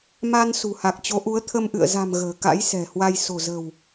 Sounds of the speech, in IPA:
m a˧ n s ṳ˨˩ h a˨˩ k̚ t͡ɕ o˨˦ ʔ u˨˦ ə̯ t̪ʰ ə˧ m ʔ ɨ̰˧˨ ə̯ z a̤˨˩ m ɣ ə̤ː˨˩ k a̰˧˥ j s ɛ̤˨˩ h w a˧ j s o̤˨˩ z ə̤˨˩ w

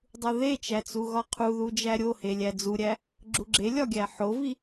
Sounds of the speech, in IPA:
dˤ u ð e t͡ʃ æ t͡s u ɣ ɒ qʰ u ð u d͡ʒ æ ɾʲ o h e lʲ æ d͡z u ɾʲ æ | ɡ͡ǁ u ɡ͡ǁ e lʲ ɒ ɡʲ æ ħ o v i

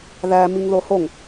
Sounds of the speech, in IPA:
ð æ m i ŋ ð o h o ŋ

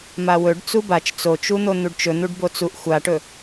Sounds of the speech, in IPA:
m a w ɵ ɖ t͡s u b a t͡ʃ t͡s o t͡ʃ u n̪ o n̪ u ɖ t͡ʃ ɵ n̪ u ɖ b o t͡s u ʔ xʷ a ʈ ɵ

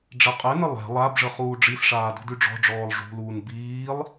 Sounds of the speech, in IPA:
ɖ͡ʐ ɛ qʼ ɛ n ə lˠ ɛ̤ lˠ a b ʐ ə χ uː ɖ͡ʐ i s ʂ aː d ṳ d y ɖ͡ʐ ɔ̤ ɖ͡ʐ ɔː lˠ ʐ ṳ l uː n b iː lˠ

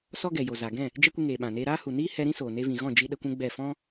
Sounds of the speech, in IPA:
s ɔ˦ ɡ ɛ˨ j o˨ z a˨ ɡ ɛ̃˦˨ | d͡ʒ ɛ˦ kʷ ɨ˧ ŋ eː˨ ɓ ã˨ n eː˧ ɾ aː˦ h u˨ n iː˦ h ɛ˧ ɾ ĩ˦ s oː˨ n e˧ v ĩ˨ ɣ ɔ̃˦˨ d͡ʒ i˦ ɗ ə˧ kʷ ũ˦ ɡ͡b ɛ˦˨ f ɔ̃˦

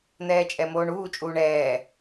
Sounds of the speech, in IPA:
n̪ ɛː t͡ʃʼ ɛ m oː ɳ uː t͡ʃʼ uː ɳ ɛː

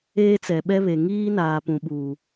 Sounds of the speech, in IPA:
eː˦ t͡s ɛ˨ ɓ ɛ˦ β e˨ ŋ iː˦ n aː˨ p ũ˨ ɓ uː˨

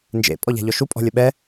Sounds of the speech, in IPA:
n d͡ʒ ḛ pʼ ɔ ʎ a̤ ʎ ɔ ʃ u pʼ ɔ̤ lʲ ə ɓ ɛ

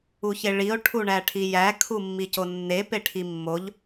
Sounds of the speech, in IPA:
u ç e ɭ i o̯ ʈʰ u ɳ æ ʈʰ i j æ kʰ u mː i c o nː e p e ʈʰ i mː o ʎ

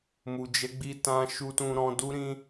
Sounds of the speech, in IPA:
m u˨ d͡ʒ ɛ˨˦ ɡ͡b i˧ t ã˦ ʃ u˦ t ũ˦ ɾ ɔ̃˧ d u˦ ɾ ĩ˦

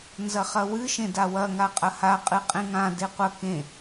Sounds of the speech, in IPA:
n z ɐ χ ɐ w ɨ ʃ ẽ d a w ɐ ŋ a qʼ ɐ h a qʼ ɨ qʼ ẽ ŋ ã d e qʷ ɐ k ẽ

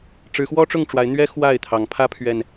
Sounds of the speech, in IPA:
ʈ͡ʂ ɻ̩˨˦ x w ɔ˦ ʈ͡ʂ ʊ˥˨ ŋ ʈ͡ʂ w a˨˦ ɪ̯ n̪ ɥ ɛ˦ x w a˥˨ ɪ̯ t̪ʰ ɑ˨˦ ŋ pʰ ä˦ pʰ ɥ ɛ˨˩ n

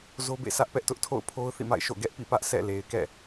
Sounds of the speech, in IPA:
z o˦ b ḛ˦˨ s ä˦ ʔ p ɛ˦ ʔ t ʊ˦ ʔ tʰ o̰˦˨ ʊ̯ pʰ o˦ ʊ̯ θ ḭ˦˨ m a̰˦˨ ɪ̯ ʃ o̰˦˨ ɡ ɛ˦ ʔ p ḭ˦˨ p ä˦ ʔ sʰ ɛ̰˦˨ l e˨ ɪ̯ k ɛ̰˦˨

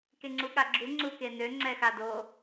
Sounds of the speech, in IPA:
k e ŋ͡ǀ u ɠ a ɡ͡ǁ u ŋ͡ǀ u k e n ø ŋ͡ǀ ɛ x a d o

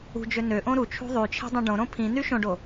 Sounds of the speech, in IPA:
ṳ d͡ʒ ø n ø ʔ õ ɾ u t͡ʃʰ ṳ ðˤ y t͡ʃʰ e̤ dˤ õ ɖ õ ɾ õ pʰ ĩ n y ʃ õ ɖ o

